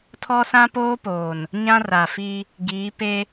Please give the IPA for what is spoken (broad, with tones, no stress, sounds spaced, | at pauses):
tʰ ɔ˦ s ã˦ p oː˦ p oː˨ n | ɲ ã˦ r a˨ f i˦ | ɡ iː˨˦ p e˦